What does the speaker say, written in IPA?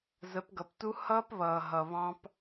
z ə˨˦ p ɡ ʌ˨ p t u˦ h ʌː˦ p β ʌː˨ ɦ ʌ˨ β ɑ̃˦ p

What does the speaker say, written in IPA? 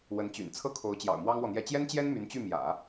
w ə˧˥ n t͡ɕ y̰˨˩ n t͡sʰ ɤ˥ kʰ o˧˥ ʊ̯ t͡ɕ j ɑ̰˨˩ ʊ̯ m w ɑ˥ ŋ w ɔ˨ n̪ j ɛ˥˩ t͡ɕ j ɛ˥ n t͡ɕ j ɛ˥ n m y˧˥ n t͡ɕ y˥˩ m j ä̰˨˩˦

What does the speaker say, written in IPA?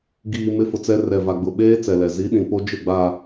ɡ iː˨ m ɪ˦ f ʊ˨ t͡s ɛ˦ r ɛ˨ v a˨ ɡ͡b ʊ˨ ɓ eː˦ t͡s ɛ˨ l ɛ˨ z i˨˦ ɗ ĩ˨ p o˦ d͡ʒ ɪ˦˨ ɡ͡b a˨

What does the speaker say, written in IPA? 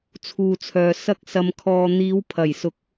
t͡sʰ uː˨ t͡sʰ œː˨ s ɐ˥ k̚ s ɐ˧ m kʰ ɔː˧ n̪ iː˨˧ w pʰ ɐ˨˩ j s ʊ˨˥ k̚

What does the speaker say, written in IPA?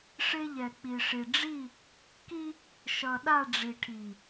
ʂ e˦ ʎ ɛ˨ k͡p i˨ ʂ i˨ ɖ͡ʐ i˦˨ | k i˦ | ʃ ʌ˨ ɗ a˦˨ ɖ͡ʐ i˨ ʈʰ i˨

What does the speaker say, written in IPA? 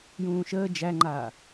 j ũː ʃ əː d͡ʒ æ ŋ͡ǃ aː

